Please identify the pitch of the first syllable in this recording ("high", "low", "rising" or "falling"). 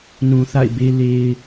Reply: low